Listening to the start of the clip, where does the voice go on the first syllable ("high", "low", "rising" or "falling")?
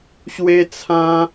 high